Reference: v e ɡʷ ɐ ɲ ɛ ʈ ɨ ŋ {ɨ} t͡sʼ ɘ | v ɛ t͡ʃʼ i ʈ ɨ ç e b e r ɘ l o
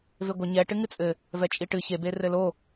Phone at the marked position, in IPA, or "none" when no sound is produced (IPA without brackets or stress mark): ɨ